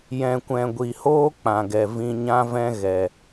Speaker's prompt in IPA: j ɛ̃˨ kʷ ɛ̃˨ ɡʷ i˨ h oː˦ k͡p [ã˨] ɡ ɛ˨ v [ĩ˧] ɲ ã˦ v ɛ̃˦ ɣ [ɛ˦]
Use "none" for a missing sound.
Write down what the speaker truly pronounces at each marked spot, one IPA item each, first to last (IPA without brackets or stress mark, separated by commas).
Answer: ã˨, ĩ˧, ɛ˨